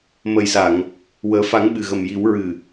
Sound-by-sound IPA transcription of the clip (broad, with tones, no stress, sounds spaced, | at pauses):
m ə˨˩ j s a˨˩˨ ŋ | w əː˨˩˦ f a˨˩˦ ŋ ɓ ɨ˨˩ ɣ ə˨˩ m j i˨˩˦ w ɹ ɨ˨˩